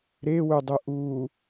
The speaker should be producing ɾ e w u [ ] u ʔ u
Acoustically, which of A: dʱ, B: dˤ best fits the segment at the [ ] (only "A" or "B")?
B